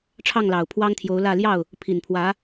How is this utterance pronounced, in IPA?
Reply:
ʈ͡ʂʰ ɑ˥˩ ŋ l ɑ˨˩ ʊ̯ pʰ w ɑ˥ ŋ t̪ʰ j o˧˥ ʊ̯ l ä˥˧ l j ɑ˥˩ ʊ̯ | pʰ i˨˩ n pʰ w ä˧˥

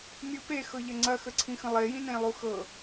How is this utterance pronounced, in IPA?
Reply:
mʲ u p e x ɤ ʎ ɐ ŋ͡ǀ ɐ x ə ǀʰ ĩ x ə̃ lˠ e j ĩ n ẽ lˠ u x ɤ

